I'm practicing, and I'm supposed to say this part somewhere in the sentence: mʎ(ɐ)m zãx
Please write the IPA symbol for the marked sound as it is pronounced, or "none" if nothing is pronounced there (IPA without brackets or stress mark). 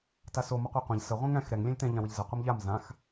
a